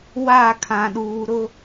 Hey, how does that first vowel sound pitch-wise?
falling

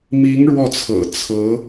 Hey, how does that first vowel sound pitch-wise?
rising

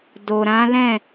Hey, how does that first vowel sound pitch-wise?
low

